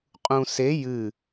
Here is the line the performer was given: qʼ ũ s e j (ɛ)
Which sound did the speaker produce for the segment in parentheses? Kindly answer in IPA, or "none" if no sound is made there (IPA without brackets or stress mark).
ɨ